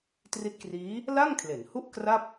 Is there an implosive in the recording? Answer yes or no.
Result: no